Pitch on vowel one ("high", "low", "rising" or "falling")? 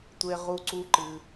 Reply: low